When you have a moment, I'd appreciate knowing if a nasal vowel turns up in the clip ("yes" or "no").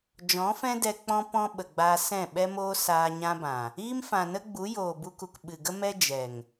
yes